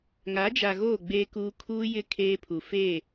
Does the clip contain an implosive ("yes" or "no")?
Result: no